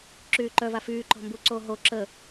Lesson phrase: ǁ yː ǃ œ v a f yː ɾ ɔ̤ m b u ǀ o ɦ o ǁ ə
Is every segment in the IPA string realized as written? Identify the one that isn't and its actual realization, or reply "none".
ɾ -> ǃ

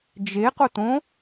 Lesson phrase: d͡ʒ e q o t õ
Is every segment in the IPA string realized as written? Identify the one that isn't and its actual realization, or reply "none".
none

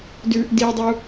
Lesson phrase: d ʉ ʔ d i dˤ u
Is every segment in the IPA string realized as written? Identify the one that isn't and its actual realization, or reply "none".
none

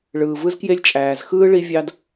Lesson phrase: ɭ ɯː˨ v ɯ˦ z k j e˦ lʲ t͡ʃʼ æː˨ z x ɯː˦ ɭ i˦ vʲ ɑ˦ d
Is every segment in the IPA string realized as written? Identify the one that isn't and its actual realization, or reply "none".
none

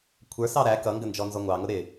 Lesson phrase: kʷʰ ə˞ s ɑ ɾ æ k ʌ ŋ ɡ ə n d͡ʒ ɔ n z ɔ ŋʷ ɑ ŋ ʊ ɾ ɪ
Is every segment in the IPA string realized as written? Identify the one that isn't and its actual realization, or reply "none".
none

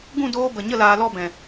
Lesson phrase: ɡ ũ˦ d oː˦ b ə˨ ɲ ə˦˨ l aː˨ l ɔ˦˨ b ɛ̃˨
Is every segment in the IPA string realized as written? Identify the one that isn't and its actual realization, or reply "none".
ũ˦ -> ũ˦˨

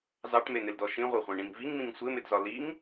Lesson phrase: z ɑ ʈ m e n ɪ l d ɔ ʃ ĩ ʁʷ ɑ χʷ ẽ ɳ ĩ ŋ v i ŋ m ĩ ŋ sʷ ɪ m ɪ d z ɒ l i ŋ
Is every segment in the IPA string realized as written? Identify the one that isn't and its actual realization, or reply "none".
none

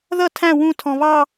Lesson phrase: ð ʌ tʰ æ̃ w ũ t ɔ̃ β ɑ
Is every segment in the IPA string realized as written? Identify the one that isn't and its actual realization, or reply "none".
t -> tʰ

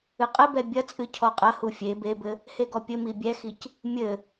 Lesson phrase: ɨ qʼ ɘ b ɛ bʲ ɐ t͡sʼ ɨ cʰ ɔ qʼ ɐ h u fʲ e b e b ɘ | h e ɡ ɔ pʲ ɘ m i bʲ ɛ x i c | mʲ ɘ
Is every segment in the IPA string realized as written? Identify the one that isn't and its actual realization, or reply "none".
none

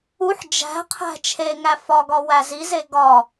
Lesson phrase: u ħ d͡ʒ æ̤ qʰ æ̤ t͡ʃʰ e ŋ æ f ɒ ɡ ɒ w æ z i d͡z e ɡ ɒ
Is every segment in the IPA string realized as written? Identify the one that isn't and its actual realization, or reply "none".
d͡z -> z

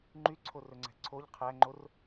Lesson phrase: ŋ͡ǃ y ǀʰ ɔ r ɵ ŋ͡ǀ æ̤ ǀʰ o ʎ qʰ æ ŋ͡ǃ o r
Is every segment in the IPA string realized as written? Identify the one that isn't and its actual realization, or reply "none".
ɔ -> o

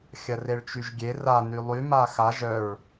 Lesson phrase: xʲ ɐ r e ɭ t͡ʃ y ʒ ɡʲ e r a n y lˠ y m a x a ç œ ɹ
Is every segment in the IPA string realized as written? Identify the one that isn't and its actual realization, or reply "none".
ç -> ʒ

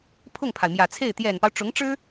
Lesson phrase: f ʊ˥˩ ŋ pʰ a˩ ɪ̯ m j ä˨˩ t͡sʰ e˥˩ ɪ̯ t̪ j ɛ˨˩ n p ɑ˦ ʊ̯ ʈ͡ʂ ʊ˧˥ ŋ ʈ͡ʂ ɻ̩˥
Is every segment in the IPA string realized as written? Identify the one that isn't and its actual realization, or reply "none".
f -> pʰ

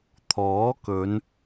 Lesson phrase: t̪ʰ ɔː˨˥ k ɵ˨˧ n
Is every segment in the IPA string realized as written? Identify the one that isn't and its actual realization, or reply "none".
none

